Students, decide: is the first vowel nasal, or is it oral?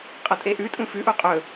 oral